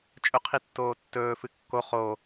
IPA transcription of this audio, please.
t͡ʃʼɵqʰitːoːtːɵː fɨkːo χo

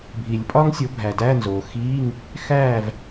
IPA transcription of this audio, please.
bʱi˨˩˦lʲpʼɒ˥ŋsʲo˨˥bʱæ˨ dæ˧˥˧nzoː˨ xiː˧˥˧ŋ | xæː˥˨v

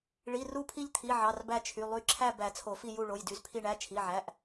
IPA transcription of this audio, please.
ɭi˩˧˩ru˦˨pʰi˦˨ʎt̪ʰi˩˧˩ ʕɑ˩˧˩rbæ˦˨t͡ʃʰy˩˧˩ lˠy˦˨ ǁʰæ˦˨ bæ˨˩˦t͡sʰo˨˩˦fi˦˨ ju˦˨ɭo˩˧˩j dy˦˨zpʰi˦˨ ɳæ˩˧˩t͡ʃʰi˩˧˩ʕæ˩˧˩ʔ

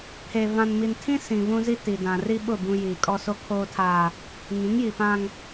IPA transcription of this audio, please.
pʰe˨ vã˨nmi˨ntʰĩ˦ sĩ˨ βũ˦zi˦ ti˨ dã˨ ri˦ɓʊ˦˨ bũ˦ jiː˨kʼɔ˦ so˦kʰoː˦tʰaː˦ | ŋĩ˨˦ŋji˨pã˦ŋ

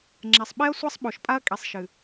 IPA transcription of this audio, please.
ŋ͡ǁa˨sˤɓe˦ɐ̯sʷa˦sˤ ɓo˨ʃpʼa˦ɐ̯ kʼi˨sˤʃɨ˨

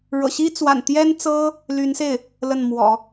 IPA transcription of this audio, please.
ɻɤ̰˨˩ɕi˥t͡swa̰˨˩n t̪jɛ˥nt͡sɤ˥ | ly˧˥nse˥˩ɪ̯ | lə˥˩nmwɔ̰˨˩˦

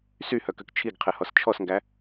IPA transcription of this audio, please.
syhœkøk t͡ʃʰiɡqʰehɔs t͡ʃʰɔsŋɡæ

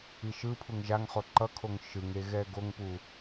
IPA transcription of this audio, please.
iʃɯpʰuŋ ʒaŋχo ǃʌkʰoŋ ʃɯŋe ɣɛɡoŋpu

